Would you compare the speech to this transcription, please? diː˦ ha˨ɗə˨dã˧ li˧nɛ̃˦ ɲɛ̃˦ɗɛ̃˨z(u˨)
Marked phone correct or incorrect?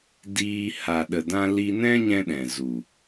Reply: correct